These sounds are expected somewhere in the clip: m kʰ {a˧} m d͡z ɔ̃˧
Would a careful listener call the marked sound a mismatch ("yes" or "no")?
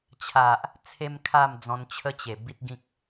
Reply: yes